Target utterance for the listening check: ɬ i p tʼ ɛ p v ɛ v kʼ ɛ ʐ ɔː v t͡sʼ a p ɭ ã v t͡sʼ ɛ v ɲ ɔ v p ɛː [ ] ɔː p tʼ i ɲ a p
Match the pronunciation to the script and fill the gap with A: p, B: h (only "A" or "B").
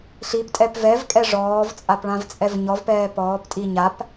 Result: A